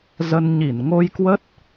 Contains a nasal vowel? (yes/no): no